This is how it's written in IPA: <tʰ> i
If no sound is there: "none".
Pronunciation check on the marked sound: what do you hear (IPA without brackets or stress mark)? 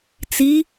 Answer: t͡s